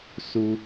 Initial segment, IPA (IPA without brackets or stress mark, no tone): s